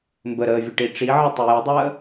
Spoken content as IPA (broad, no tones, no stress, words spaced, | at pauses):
mbəɾəːvʲəʈi ʈ͡ʂiʕɪtˤə jɪdˤəː